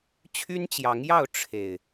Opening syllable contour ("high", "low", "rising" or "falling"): high